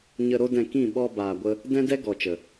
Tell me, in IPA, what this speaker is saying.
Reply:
ɲ ə˧ ɾ o˦ d ɛ̃˧ k ĩ˦˨ ɓ ɔ˧ b aː˨ ɡʷ ə˧ | d ɛ̃˦ d ɛ˦ ɡ ɔ˨ t͡ʃ ə˨

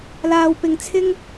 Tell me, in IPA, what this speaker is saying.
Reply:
l aː˨ w p ɪ˨ ŋ t͡sʰ ɪ˥ ŋ

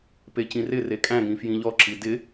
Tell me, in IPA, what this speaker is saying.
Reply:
p e c ĩ r ɪ r e kʼ æ̃ ŋ ĩ f j ĩ ʎ ɔ ǁ i d ɪ

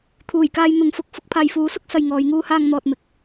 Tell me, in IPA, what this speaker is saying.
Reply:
t̪ʰ uː˨˩ j k aː˧ j n̪ ʊ˨˥ ŋ f ʊ˨ k̚ f ʊ˧ k̚ pʰ aː˨ j f uː˨˥ s ʊ˥ k̚ s ɐ˧ j ŋ ɔː˨˧ j ŋ uː˥ h aː˧ ŋ n̪ ɔː˨ t̚ m ɪ˨˥ k̚

